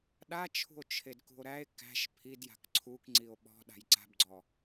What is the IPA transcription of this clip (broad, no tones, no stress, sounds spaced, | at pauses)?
ɗ a t͡ʃʰ ṳ o̯ t͡ʃʰ e d k ṳ o̯ ɾ æ e̯ k æ̤ ʃ pʰ i d j a̤ k ǀʰ u k ŋ͡ǀ i o̯ ɓ ɔ̤ ɗ a̤ j ǀ a̤ b ɡ͡ǀ ɔ